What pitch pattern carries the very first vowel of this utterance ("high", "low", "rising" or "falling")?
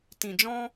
low